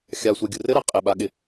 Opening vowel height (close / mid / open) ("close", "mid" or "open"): open